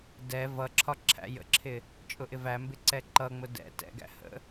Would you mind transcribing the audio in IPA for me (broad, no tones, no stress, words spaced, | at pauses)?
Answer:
dɛ vʌǁʰɒ ǁʰæ̰jə̰ǁʰɪ | t͡ʃʼʊʔɪvæmbɪ ǀɛǃʌŋ͡mʊ dɛ̰ tɛ̰ɡæ̰ hə̰